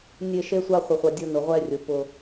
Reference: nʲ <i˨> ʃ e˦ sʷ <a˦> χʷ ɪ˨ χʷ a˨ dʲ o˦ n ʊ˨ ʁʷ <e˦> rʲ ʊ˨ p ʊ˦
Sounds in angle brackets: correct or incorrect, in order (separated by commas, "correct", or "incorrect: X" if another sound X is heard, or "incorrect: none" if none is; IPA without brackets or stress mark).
incorrect: e˨, correct, incorrect: ɛ˦